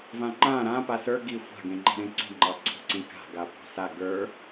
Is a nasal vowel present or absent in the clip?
present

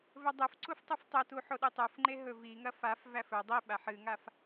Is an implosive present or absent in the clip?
present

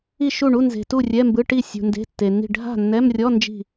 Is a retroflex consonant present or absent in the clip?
present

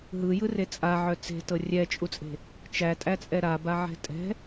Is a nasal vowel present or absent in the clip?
absent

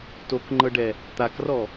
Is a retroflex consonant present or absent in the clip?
present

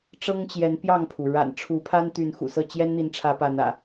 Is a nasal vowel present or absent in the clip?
absent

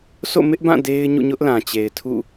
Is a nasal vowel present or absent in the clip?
present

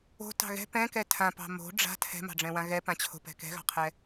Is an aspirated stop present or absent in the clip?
present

